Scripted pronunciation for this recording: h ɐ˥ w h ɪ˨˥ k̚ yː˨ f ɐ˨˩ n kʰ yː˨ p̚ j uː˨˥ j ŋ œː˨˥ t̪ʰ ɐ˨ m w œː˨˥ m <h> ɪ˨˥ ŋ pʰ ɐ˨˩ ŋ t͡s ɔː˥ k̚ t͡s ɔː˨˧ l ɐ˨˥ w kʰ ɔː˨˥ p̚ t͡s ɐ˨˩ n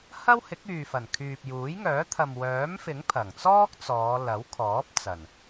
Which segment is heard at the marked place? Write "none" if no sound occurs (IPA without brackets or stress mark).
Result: f